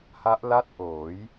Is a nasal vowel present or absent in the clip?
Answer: absent